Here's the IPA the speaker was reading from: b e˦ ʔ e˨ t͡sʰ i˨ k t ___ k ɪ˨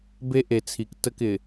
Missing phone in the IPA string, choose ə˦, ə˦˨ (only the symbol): ə˦˨